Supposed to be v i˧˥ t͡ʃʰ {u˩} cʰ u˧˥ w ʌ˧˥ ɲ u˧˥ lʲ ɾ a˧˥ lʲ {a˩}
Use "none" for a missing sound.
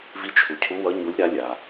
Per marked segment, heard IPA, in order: u˩, a˩

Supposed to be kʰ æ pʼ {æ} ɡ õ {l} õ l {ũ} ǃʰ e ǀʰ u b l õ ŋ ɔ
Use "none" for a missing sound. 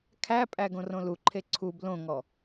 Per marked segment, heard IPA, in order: æ, r, u

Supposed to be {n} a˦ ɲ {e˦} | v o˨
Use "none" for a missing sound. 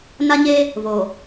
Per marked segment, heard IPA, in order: n, e˦

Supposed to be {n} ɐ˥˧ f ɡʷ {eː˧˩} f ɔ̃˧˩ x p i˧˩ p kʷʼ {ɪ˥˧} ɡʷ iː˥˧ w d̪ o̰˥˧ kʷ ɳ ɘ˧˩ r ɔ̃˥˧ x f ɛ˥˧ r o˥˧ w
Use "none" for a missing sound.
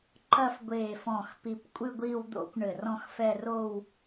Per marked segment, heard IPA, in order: ǃ, eː˧˩, ɨ˥˧

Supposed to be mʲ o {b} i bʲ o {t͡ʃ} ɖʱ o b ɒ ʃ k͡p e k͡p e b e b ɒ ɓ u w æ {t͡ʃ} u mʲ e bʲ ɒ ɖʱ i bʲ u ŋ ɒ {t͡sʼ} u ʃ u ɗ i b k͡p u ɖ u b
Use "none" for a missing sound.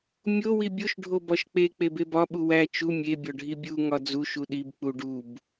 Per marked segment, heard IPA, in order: w, ʃ, t͡ʃ, d͡z

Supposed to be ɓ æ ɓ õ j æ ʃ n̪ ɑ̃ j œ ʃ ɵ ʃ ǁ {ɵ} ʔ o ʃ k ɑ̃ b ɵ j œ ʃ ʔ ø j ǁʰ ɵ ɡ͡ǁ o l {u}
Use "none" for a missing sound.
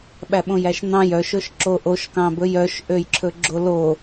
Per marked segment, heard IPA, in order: o, o

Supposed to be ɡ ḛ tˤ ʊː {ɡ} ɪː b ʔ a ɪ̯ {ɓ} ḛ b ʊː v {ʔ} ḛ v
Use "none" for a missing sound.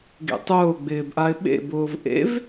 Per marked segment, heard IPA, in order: ɡ͡b, ɓ, ʔ

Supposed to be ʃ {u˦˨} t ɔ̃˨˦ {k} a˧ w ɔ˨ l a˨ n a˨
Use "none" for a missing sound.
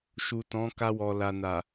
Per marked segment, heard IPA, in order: u˨, k

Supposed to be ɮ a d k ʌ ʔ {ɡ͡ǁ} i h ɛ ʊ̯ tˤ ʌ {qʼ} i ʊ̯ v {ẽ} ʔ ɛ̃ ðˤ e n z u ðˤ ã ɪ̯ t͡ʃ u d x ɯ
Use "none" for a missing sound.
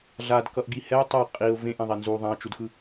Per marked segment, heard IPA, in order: ɡ, qʼ, ẽ

